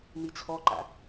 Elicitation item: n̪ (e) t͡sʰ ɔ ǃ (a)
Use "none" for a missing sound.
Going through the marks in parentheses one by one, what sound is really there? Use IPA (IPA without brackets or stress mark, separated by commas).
i, a̰